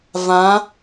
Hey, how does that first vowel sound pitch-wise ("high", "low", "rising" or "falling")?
rising